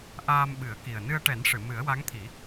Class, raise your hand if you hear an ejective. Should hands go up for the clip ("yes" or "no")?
no